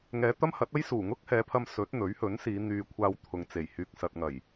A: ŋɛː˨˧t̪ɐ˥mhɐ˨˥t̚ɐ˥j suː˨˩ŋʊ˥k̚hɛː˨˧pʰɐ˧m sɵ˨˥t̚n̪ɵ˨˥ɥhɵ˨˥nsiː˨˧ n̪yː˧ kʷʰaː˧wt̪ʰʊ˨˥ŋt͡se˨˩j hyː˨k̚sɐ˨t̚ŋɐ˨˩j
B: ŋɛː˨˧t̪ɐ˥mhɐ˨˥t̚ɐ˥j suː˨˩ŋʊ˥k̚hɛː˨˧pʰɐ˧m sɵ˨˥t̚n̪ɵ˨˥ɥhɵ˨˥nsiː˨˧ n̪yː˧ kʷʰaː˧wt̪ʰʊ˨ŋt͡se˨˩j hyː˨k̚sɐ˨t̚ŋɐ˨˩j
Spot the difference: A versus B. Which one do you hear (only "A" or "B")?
B